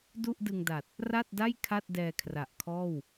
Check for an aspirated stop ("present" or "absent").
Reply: present